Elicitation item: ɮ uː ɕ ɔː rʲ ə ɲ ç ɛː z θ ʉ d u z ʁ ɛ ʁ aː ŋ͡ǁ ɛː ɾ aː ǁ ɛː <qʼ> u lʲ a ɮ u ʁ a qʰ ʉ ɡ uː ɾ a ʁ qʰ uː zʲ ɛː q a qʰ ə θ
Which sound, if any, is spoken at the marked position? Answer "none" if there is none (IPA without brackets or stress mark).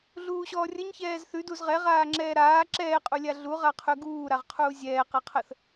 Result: qʼ